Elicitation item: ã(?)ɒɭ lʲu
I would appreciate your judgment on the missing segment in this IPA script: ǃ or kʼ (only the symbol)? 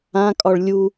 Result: kʼ